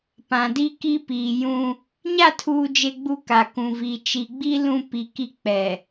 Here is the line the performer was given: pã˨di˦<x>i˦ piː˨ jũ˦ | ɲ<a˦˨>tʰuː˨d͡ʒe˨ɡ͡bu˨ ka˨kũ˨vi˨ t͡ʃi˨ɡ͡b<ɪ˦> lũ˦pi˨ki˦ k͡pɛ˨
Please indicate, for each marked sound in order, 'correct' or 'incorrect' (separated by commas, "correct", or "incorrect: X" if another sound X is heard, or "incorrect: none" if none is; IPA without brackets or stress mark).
incorrect: k, correct, incorrect: i˦